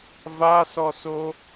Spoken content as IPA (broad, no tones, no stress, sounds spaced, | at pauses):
v a s ɔ s o